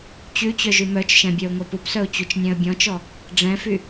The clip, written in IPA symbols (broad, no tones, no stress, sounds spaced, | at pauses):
t͡ɕ ʉ t͡ɕ œ ʒ y m œ t͡ʃ ʃ ɛ̃ bʲ œ ʊ̯ ŋʷ ɛ p u p s œ ʊ̯ t͡ɕ u t͡ʃ nʲ ɛ̃ ə̯ bʲ ɔ̃ t͡ʃ ɔ | ɖ͡ʐ ɛ̃ f y